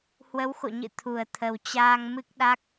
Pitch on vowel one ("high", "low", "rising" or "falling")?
rising